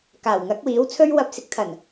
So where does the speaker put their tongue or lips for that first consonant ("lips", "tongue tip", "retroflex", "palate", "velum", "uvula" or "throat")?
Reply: velum